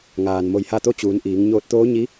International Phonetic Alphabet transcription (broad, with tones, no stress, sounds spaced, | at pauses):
ŋ aː˩ n m o˧ j h a˥˨ t̪ o˧˥ t͡ɕ uː˩˧ n ʔ iː˩˧ ŋ ɲ oː˧ t̚ t̪ oː˧˥ ɲ i˧˥